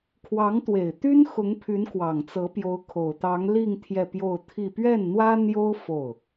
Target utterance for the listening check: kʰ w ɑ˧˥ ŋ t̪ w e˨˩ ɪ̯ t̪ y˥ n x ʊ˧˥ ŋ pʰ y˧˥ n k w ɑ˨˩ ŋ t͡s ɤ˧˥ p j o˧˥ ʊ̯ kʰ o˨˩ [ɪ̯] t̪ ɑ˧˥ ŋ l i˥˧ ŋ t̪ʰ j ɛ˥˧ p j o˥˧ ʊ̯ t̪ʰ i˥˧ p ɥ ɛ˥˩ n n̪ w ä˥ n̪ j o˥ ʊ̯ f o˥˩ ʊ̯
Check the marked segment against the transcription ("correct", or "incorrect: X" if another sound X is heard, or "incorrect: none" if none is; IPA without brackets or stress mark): incorrect: ʊ̯